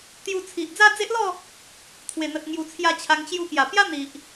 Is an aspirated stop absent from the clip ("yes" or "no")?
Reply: no